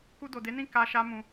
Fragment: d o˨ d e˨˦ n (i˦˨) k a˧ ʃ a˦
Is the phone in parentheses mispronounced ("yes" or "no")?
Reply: yes